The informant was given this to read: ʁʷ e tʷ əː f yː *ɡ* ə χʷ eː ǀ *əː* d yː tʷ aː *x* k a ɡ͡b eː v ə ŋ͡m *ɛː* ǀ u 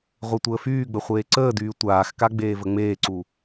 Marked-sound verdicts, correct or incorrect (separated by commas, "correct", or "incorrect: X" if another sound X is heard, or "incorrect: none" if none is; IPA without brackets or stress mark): incorrect: ɡ͡b, correct, correct, incorrect: eː